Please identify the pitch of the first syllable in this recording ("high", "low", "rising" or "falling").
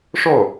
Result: falling